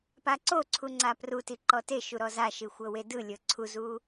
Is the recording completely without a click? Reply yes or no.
no